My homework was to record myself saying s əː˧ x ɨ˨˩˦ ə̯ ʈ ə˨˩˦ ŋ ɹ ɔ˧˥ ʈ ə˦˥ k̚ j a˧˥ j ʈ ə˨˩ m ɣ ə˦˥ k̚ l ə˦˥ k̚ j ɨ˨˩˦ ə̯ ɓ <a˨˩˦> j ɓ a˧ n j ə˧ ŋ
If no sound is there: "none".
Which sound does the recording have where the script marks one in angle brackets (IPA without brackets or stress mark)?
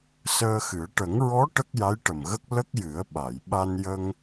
a˨˩˨